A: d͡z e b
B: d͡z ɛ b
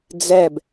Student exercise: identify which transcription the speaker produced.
B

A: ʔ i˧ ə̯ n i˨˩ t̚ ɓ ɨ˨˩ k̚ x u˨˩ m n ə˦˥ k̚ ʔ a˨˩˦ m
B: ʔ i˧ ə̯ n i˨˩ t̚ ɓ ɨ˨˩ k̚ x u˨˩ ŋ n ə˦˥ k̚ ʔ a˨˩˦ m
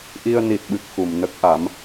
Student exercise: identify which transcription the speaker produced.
A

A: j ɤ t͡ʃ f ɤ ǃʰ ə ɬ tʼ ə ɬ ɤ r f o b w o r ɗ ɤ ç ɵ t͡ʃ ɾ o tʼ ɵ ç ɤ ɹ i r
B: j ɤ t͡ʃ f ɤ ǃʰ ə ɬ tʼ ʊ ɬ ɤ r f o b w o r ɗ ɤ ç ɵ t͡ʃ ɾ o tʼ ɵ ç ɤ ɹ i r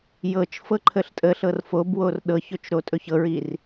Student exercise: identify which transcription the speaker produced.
A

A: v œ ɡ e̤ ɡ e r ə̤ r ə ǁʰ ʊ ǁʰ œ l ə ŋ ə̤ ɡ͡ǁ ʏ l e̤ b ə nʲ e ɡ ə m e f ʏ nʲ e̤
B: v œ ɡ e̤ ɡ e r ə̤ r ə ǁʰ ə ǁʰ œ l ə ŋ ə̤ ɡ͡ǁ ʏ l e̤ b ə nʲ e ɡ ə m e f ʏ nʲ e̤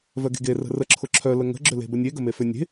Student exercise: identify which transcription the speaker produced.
A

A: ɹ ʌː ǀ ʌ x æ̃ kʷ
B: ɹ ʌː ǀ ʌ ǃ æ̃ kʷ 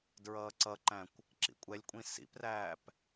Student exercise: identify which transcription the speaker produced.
B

